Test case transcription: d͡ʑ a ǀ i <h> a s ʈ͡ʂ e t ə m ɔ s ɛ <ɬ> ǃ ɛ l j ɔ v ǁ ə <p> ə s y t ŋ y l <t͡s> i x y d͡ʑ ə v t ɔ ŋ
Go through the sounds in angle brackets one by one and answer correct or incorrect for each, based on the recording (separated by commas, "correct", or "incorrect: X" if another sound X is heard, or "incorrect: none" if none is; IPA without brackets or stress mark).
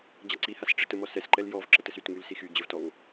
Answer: correct, incorrect: s, incorrect: t, incorrect: s